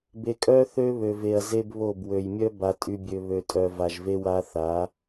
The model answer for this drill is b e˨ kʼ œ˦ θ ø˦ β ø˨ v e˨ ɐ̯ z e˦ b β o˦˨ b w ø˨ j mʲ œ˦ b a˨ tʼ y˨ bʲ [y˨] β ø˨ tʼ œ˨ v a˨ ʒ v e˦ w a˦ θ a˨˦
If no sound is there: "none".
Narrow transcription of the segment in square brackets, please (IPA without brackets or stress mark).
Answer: ø˨